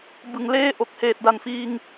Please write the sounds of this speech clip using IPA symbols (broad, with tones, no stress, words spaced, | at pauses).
bɯ˨˩ŋleː˥˩ ʔo˨˩k̚heː˨˩t̚da˨˩nfiː˧ŋ